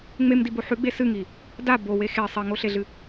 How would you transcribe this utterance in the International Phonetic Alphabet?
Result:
ŋ͡m e m d i b o ħ ʉ ɡ͡b e s ɨ ŋ i | d a b o w e x e sˤ e ŋ o ɬ e ɮ ɨ

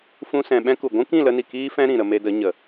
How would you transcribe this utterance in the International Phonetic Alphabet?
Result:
f ũ˧ s ɛ̃˨ ɓ ɛ̃˦ k u˨ ɡʷ ũ˦ k ĩ˦˨ l ə˧ n i˨ k iː˦ f ɛ̃˦ ɾ ĩ˨ ɾ ə˧ m e˧ d ə˨˦ ɲ ə˨

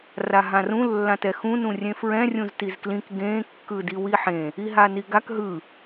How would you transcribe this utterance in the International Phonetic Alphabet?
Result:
r a ɦ ã r ũ lː ã t ɛ x ũ n ũ rʲ ẽ f ɹ ɛ̃ rʲ ũ z t i z k l ĩ k ɡ ẽ kː ɯ d i w i ħ ẽ | i ɦ a n i ɡ a k ɦ ɯ

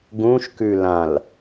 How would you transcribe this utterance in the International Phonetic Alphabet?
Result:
ɡ ũ ʃ k ʉ l ã l

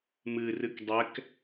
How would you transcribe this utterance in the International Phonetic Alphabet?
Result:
m ɨ r ɨ k dˤ ɛ k

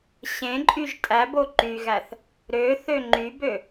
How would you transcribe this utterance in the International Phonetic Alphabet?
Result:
ɕ ẽ ǃʼ y ʒ tʼ æ b o ǃ y ɣ æ θ | ɾ ø θ ø ŋ͡ǃ y b ø

